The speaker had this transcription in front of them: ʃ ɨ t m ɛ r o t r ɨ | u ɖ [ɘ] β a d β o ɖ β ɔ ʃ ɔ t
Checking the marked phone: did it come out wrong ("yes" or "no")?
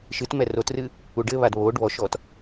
no